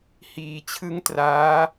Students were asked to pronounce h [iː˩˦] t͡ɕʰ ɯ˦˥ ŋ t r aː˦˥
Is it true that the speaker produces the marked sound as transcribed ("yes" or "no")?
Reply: yes